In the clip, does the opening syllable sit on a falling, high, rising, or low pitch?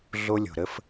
high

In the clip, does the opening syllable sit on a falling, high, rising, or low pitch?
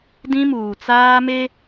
high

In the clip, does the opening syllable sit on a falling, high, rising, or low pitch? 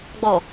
low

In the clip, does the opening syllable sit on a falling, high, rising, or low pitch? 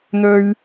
low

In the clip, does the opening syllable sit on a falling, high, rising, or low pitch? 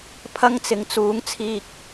high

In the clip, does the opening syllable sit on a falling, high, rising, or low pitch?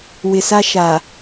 low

